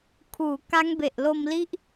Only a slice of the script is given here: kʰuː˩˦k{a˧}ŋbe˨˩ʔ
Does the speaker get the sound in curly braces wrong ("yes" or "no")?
yes